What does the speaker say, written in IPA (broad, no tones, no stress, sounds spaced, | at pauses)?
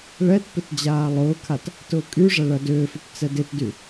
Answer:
ɭ ɛ t p ɪ t d͡ʑ aː lˠ ʊː kʰ a t | t ʊː kʼ y ʐ ɐ ɭ ɐ d ʏː f ʏ p t͡s ɛ d ɪ t d y